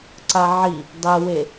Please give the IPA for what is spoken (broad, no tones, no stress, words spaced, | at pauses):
ǀaʕi | dˤewe